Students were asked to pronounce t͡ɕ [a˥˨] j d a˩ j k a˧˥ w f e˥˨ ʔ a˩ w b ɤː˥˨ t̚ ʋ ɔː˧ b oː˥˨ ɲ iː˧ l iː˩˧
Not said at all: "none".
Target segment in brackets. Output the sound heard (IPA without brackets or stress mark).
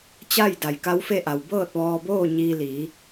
a˥˨